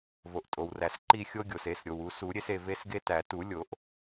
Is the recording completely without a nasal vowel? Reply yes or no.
yes